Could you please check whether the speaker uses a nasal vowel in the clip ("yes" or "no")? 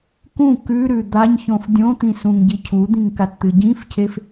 yes